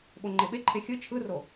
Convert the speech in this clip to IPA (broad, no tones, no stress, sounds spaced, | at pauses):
ɓ o ŋ͡ǃ e ɓ e ǃʰ e xʲ ɯ t͡ʃʰ ɯ r o